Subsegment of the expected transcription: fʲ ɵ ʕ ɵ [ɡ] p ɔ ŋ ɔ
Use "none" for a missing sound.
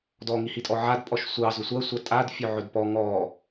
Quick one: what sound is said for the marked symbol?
d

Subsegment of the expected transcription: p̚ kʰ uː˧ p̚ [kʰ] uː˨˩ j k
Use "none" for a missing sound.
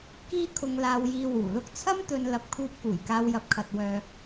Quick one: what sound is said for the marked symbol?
k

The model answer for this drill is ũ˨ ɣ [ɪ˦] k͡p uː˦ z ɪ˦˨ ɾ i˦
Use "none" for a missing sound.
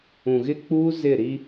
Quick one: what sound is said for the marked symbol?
ɪ˦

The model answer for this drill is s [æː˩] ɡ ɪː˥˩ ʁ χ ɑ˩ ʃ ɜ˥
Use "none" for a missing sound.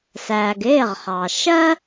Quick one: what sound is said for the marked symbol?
æː˩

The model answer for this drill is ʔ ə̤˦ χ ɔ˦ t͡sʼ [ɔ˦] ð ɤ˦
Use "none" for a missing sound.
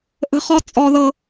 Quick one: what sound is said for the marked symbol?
ɔ˦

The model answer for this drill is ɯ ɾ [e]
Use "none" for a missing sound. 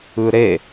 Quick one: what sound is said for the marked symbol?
e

